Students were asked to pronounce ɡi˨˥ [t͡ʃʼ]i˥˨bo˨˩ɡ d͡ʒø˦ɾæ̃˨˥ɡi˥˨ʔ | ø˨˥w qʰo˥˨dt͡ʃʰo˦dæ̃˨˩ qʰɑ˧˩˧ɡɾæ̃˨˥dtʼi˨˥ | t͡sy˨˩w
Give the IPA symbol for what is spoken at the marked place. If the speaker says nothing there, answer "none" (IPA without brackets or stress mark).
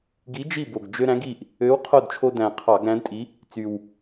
d͡ʒ